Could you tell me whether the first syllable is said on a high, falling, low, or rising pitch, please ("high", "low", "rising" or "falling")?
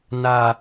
low